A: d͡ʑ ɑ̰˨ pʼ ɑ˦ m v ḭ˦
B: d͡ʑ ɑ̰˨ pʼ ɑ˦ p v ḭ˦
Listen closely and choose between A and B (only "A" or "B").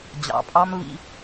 A